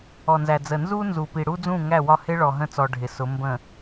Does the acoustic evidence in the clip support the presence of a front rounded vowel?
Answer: no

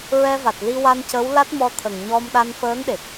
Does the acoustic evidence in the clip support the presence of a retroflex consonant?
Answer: no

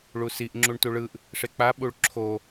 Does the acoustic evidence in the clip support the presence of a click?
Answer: yes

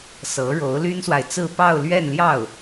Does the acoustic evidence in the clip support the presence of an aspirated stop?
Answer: no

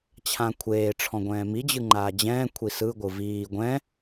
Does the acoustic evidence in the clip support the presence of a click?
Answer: yes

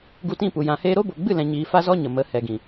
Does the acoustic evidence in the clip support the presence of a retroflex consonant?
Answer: no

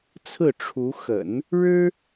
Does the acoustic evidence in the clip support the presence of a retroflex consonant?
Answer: yes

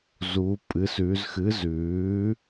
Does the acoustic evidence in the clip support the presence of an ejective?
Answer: yes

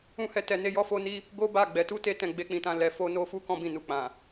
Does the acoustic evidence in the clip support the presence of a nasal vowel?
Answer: yes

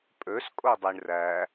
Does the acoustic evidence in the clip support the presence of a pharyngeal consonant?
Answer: no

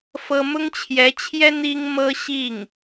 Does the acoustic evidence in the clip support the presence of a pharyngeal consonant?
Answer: no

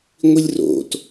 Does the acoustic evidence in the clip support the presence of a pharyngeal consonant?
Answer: no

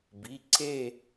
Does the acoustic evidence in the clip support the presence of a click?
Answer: yes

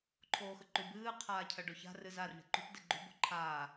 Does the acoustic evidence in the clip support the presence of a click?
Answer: yes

